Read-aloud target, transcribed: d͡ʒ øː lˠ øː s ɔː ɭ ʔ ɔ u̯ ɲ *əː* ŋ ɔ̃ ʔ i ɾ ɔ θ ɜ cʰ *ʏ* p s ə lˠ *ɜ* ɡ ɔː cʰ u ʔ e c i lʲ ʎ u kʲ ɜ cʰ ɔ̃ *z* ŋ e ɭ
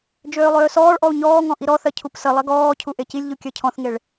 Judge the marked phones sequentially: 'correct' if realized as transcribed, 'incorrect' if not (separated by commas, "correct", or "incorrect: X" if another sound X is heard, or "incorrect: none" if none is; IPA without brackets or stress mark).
incorrect: ɔː, incorrect: u, correct, incorrect: θ